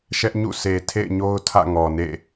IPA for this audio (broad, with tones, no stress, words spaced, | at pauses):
ʃɛ˦ʔɲṵ˦˨se˨ tʰḛ˦˨ɪ̯ɲo˦ʊ̯ tʰä̰˦˨ŋɔ˨nḛ˦˨